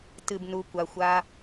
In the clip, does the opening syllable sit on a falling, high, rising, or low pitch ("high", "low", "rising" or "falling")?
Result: low